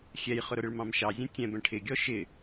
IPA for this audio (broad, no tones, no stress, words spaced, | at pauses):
xʲɛjχʊɾʊɾɪɭ mɑ̃mʃɑzʲɛ̃ tʲɛ̃ bɛ̃ʈʰɪɡʲɔ ʃɪ